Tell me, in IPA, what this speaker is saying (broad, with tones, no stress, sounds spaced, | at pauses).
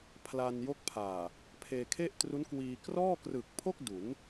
pʰ l a˧ n j o˦˥ k̚ pʰ aː˨˩ | pʰ eː˧ kʰ e˥˩ ʔ t r u˦˥ n k w iː˧ k r ɔː˥˩ k r ɯ˨˩ k̚ pʰ o˥˩ k̚ d u˩˦ n